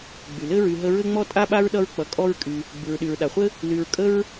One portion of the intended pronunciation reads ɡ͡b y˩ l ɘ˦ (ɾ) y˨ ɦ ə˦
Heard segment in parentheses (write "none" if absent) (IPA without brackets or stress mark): ɹ